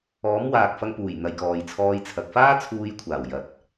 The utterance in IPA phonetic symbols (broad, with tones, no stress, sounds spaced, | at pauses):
ɔː˨˥ m w aː˨ k̚ f ɐ˧ ŋ p uː˨˩ j n̪ ɐ˨ j k ɔː˨ j t͡sʰ ɔː˧ j t͡sʰ ɐ˨ k̚ f aː˥ t͡sʰ uː˧ j kʷʰ aː˨˩ w j ɐ˨ t̚